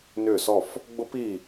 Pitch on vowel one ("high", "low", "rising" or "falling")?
falling